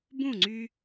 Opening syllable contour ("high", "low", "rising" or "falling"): falling